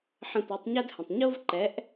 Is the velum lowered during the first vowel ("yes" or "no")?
yes